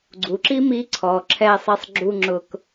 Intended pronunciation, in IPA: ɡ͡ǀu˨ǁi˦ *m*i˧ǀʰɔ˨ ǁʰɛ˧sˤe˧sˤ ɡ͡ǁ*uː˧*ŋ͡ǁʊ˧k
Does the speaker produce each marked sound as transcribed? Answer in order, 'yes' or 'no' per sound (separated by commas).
yes, no